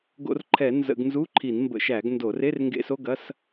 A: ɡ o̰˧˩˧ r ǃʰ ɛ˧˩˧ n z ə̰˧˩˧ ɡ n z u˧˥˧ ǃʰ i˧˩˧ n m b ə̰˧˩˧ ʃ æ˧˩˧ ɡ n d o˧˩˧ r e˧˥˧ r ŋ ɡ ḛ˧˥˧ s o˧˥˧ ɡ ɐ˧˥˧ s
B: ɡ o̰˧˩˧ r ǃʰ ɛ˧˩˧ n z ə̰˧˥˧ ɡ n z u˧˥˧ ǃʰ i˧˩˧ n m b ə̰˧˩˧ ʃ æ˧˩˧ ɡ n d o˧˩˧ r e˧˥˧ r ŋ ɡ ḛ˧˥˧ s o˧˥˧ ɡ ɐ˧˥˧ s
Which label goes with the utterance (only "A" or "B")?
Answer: A